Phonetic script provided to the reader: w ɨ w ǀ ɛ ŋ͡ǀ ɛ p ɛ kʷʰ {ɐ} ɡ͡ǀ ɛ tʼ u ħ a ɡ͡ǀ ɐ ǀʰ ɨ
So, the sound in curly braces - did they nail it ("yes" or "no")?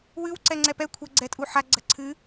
yes